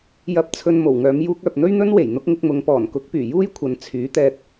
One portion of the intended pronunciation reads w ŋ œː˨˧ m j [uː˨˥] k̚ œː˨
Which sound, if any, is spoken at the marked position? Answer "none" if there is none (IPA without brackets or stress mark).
uː˧